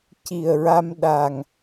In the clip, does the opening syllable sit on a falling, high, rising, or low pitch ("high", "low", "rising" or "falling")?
low